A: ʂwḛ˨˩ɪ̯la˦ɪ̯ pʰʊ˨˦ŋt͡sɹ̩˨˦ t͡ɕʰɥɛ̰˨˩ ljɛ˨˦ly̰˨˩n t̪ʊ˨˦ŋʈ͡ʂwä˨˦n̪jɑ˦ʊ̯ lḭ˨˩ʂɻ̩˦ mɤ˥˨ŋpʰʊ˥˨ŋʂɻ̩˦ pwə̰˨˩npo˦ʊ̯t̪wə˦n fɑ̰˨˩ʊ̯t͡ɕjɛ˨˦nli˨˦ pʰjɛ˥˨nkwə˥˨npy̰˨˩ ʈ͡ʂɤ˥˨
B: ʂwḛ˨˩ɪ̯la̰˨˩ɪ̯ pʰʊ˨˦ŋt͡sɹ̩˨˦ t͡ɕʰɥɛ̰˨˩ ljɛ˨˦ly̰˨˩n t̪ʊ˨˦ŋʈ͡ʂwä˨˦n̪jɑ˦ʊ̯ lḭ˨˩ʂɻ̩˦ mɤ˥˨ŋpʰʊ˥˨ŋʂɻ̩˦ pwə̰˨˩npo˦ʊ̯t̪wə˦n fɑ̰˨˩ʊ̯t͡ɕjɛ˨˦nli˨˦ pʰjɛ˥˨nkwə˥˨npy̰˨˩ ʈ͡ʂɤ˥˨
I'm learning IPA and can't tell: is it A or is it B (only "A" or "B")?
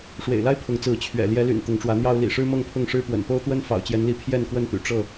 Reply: A